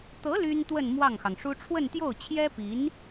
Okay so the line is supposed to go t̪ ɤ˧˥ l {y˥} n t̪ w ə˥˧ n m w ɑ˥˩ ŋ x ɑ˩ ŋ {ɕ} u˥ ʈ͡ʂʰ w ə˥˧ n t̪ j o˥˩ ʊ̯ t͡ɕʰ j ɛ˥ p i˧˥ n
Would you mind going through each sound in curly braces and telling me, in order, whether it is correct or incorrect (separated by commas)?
correct, incorrect